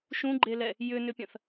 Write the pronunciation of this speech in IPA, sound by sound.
ʃ ũ ɡ͡ǃ e l ɛ | j ʏ n ʏ pʲ ɐ̃ θ

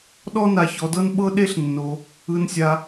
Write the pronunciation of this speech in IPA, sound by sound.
ɗ ɔ˦ n a˧ ç ɔ˧ d ɤ˦ n ɓ ɤ˦ ɗ e˦ ɬ nː o˧ | ɯ˧ n sʲ a˧

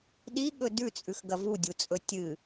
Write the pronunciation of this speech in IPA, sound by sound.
ɗ i ɠ ɵ d ʉ t͡sʼ ʉ x ɡ ɐ v u dʲ u t͡sʼ ɵ tʲ ɨ

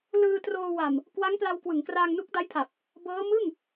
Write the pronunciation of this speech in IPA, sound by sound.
l ɯː˧ t r oː˧ w a˨˩ m | k w a˦˥ ŋ p l a˧ w k w ɯ˩˦ ŋ k r aː˧ ŋ n u˦˥ k̚ d a˦˥ j pʰ a˨˩ p̚ | b ɤː˦˥ m ɯ˥˩ ŋ

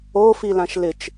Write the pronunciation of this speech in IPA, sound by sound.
o f i l ã ʃ l ɪ t͡ʃ

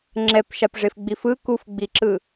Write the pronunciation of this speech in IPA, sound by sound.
ŋ͡ǁ ɛ p ʃ a p ʐ e f ɡ͡b i f ɯ k u f ɡ͡b i ǁ ɯ

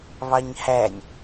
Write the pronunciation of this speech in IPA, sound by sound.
β ɑ ɲ h æ nʲ

